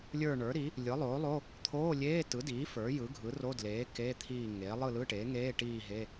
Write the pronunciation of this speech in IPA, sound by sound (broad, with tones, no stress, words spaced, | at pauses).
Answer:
lʲə˞˦˨ɳə˞˩˥ɾi˩˥ | lʲɯ˩˥lˠoː˩˥lˠo˧˥˧ | t̪ʰoː˧˥˧lʲeː˧˥˧ tɯ˩˥diː˩˥ fə˞˩˥jɯ˩˥ɡʱɯ˩˥ ro˧˥˧dleː˩˥ keː˧˥˧t̪ʰiː˦˨ŋeː˩˥ lˠɯ˦˨ lɯ˧˥˧ʈeː˩˥ŋeː˧˥˧ʈiː˦˨ ɦe˧˥˧